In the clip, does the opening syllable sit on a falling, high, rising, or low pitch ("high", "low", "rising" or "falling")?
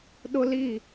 high